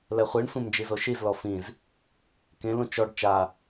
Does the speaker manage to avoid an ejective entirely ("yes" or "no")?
yes